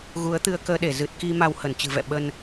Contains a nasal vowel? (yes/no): no